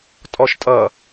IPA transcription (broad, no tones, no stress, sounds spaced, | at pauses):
tʼ ɔ ʃ tʼ ʌ